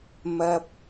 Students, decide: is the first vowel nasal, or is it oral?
oral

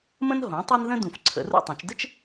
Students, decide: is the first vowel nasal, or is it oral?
nasal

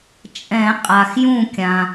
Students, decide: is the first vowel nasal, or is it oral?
nasal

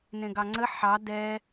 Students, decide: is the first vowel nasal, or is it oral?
nasal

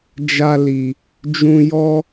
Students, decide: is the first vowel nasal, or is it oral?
oral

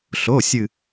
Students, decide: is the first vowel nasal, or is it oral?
oral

